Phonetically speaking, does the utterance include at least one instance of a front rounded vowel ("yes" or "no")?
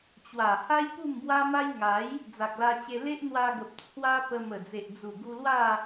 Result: no